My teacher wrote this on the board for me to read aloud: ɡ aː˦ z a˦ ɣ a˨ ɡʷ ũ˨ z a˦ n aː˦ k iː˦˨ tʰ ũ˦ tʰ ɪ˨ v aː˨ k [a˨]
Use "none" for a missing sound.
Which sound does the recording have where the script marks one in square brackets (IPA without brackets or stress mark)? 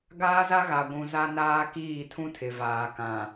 ã˨